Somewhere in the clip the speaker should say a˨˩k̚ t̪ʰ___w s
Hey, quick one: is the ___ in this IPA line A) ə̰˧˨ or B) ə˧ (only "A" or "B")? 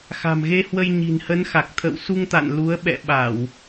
A